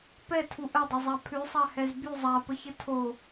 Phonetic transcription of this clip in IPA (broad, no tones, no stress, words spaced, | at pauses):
pɛtʰu ʔədˤəzˤa pʰʉsˤahɛz by zˤapəçə tʰo